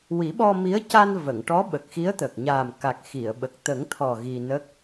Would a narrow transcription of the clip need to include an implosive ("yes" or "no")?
yes